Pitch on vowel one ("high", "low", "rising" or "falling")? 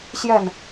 falling